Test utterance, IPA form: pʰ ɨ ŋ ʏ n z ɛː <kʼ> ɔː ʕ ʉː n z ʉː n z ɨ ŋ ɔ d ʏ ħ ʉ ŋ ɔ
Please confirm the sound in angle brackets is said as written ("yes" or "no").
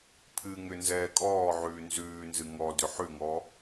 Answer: yes